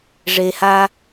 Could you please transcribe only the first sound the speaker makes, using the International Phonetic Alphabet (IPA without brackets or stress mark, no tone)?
ʐ